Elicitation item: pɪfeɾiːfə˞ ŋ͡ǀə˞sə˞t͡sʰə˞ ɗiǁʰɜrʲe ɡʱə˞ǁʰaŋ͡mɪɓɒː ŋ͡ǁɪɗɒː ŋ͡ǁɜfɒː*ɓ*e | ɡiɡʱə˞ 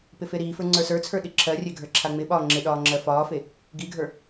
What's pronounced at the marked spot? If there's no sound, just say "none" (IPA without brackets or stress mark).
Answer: f